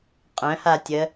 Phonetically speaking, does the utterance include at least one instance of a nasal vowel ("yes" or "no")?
yes